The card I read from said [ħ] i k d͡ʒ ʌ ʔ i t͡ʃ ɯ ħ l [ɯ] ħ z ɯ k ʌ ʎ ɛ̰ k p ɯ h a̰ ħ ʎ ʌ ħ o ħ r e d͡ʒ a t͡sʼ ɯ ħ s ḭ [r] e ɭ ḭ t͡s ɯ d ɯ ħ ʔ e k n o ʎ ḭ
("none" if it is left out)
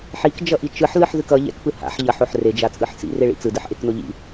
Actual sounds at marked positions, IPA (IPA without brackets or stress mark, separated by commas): ħ, ɯ, r